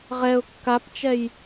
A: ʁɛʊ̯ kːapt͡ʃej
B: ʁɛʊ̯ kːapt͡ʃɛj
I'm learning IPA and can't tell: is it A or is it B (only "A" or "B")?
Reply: B